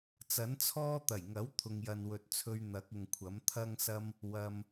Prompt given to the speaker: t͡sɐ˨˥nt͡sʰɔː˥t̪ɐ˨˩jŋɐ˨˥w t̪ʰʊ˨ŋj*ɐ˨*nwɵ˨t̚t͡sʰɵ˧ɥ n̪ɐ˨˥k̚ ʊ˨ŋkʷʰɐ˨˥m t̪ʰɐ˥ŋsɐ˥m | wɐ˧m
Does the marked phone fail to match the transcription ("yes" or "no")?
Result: no